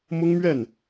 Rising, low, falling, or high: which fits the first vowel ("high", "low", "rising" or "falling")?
high